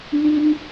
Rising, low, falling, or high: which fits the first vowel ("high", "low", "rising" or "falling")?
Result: high